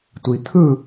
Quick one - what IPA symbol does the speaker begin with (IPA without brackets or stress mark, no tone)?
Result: tʷ